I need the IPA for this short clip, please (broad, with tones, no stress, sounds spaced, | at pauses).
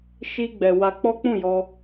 ʃ i˧ ɡ͡b ɛ˨ w a˧ k͡p ɔ˦ k͡p ũ˦˨ j ɔ˧